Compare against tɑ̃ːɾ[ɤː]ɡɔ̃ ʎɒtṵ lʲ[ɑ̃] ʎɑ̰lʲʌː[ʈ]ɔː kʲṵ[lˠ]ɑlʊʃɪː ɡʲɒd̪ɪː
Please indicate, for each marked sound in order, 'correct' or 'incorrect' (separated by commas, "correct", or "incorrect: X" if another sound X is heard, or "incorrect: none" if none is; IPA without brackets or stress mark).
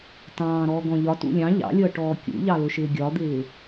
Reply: incorrect: ɔː, correct, correct, incorrect: ʎ